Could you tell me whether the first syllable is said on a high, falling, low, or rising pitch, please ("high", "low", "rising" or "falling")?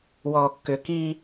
low